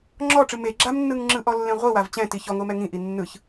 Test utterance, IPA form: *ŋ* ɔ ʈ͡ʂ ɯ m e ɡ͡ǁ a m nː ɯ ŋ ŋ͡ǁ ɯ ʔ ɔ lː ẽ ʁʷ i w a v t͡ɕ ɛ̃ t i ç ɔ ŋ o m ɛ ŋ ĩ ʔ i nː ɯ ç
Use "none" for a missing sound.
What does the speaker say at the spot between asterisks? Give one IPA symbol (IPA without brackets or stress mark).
ŋ͡ǁ